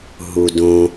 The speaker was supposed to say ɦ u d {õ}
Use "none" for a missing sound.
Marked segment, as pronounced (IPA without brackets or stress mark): õ